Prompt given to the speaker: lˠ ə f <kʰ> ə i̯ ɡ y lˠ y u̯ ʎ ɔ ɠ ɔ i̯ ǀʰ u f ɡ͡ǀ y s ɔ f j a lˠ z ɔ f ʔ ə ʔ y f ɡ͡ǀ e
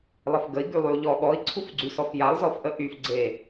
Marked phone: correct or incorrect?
incorrect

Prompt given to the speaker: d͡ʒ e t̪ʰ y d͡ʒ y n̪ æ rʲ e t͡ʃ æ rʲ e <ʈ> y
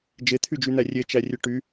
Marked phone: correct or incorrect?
correct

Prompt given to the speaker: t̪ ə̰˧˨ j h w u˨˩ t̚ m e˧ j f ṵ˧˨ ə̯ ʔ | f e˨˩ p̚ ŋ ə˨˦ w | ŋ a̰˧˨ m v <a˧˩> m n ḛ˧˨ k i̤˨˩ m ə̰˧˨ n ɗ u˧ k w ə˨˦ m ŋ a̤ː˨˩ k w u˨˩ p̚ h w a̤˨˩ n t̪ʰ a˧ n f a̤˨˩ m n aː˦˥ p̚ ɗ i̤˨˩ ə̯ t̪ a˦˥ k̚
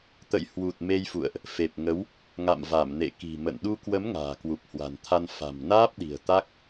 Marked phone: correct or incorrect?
correct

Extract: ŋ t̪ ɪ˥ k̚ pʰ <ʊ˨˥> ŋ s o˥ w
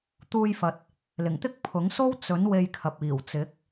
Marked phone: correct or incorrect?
correct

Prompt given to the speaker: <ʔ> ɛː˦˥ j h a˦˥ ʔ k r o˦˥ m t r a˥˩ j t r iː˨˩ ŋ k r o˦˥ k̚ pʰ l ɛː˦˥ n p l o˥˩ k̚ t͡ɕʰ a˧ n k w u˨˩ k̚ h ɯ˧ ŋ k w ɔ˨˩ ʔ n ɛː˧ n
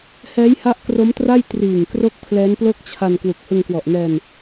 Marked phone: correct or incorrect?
incorrect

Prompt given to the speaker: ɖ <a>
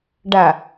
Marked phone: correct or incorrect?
correct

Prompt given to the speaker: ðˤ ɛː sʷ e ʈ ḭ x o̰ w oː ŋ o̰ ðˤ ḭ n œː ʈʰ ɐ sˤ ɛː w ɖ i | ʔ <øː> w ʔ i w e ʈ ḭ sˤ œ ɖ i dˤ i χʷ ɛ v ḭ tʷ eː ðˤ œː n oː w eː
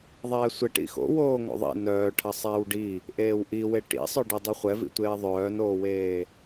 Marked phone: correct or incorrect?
incorrect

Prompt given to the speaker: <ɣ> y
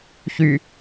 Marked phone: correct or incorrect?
incorrect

